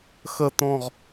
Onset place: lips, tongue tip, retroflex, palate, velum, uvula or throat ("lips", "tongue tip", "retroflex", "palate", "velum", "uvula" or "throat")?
velum